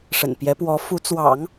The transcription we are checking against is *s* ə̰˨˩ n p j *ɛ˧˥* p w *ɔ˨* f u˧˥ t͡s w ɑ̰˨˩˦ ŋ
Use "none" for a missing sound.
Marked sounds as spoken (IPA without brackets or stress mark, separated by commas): ʂ, ɛ˧˥, ɔ˧˥